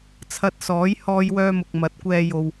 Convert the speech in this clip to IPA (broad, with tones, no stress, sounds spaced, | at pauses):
t͡sʰ ɐ˧ t̚ s ɔː˨˥ j h ɔː˧ j w œː˧ m ʊ˨ k̚ m ɐ˨˥ t̚ kʷ ɛː˧ j o˨ w